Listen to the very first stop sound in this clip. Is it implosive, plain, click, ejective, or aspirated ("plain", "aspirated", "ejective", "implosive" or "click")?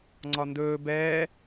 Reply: click